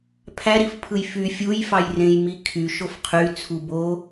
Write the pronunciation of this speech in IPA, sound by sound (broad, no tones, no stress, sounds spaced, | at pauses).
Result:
pʰ æ ɾ i f pʰ ɯ j f y fʲ u j f ɑ j r ẽ j m i kʰ y ʃ o f qʰ y t͡sʰ u b o